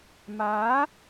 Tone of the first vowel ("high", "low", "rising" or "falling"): rising